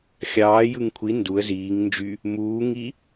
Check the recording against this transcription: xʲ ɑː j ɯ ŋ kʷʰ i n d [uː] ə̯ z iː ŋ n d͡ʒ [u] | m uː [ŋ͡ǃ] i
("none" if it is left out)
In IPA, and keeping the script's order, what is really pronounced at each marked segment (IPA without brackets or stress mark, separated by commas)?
u, y, ŋ